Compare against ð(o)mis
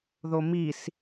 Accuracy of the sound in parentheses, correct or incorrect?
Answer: correct